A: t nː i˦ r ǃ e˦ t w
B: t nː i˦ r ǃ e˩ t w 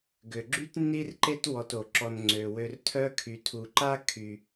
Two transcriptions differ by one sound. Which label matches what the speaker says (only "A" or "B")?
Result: A